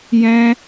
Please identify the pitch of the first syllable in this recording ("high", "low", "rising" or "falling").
high